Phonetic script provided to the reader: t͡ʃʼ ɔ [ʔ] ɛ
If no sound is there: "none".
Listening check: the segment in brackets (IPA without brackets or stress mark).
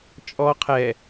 qʰ